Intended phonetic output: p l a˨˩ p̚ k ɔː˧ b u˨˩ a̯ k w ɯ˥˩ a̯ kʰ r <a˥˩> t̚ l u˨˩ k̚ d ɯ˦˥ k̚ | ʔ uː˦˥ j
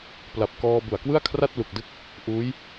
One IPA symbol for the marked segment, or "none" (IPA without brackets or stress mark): a˥˩